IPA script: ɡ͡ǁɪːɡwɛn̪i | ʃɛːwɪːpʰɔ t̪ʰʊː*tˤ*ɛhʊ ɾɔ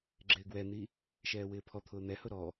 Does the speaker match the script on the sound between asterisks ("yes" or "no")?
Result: no